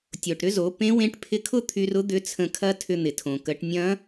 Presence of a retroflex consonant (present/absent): present